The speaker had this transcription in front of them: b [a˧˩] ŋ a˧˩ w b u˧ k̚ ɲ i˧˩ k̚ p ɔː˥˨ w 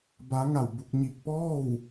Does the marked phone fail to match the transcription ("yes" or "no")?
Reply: yes